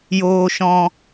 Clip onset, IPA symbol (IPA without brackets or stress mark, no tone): j